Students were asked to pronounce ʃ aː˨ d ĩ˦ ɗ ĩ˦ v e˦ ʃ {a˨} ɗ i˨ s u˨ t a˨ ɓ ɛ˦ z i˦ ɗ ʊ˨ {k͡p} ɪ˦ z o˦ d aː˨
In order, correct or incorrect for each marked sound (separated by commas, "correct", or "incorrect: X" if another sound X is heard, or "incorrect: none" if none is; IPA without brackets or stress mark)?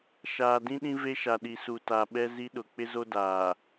correct, correct